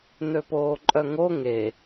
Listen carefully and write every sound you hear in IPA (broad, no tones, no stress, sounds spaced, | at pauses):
n̪ ø p oː ǃʼ œ ŋ o ŋ e